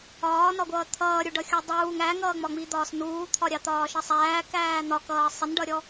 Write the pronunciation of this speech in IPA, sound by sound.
ɒː n ɒ ɡʷ ʌː t̪ʰ ʌː ɾʲ u ɖ ʌ xʲ u dˤ uː ŋ æ ŋ ʌː ŋ͡m ɒ ŋ͡m i d̪ ɒː s n uː t̪ʰ ɒ ɾʲ ɑ t̪ ɒː ʃ ʌ sˤ æː k æː n̪ ɒ k ʌː sˤ ɪ n ɖ ʌ ɾʲ ɔ

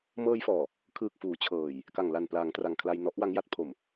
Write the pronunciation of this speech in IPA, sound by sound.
m ɤː˧ j f ɔː˨˩ | kʰ ɯː˨˩ k̚ f uː˩˦ t͡ɕʰ ɤː˨˩ j | k a˨˩ ŋ l a˨˩ n p l aː˩˦ ŋ t r a˨˩ ŋ kʰ l a˧ j n ɔ˦˥ ʔ w a˦˥ ŋ j a˦˥ t̚ pʰ o˨˩ m

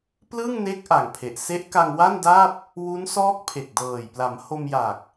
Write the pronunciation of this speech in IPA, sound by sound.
p l ɯ˥˩ ŋ n e˦˥ k̚ ʔ a˨˩ ŋ pʰ e˨˩ ʔ s e˦˥ ʔ k a˧ ŋ w a˥˩ n d a˥˩ p̚ | w u˦˥ n s ɔː˦˥ k̚ pʰ e˨˩ k̚ d ɤː˨˩ j p l a˩˦ m h o˧ m j a˨˩ k̚

